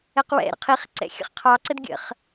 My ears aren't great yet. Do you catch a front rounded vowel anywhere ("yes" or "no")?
no